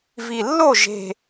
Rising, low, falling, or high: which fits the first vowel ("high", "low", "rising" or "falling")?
low